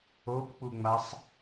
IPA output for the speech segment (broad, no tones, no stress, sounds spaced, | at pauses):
o p k͡p u ŋ͡m a sˤ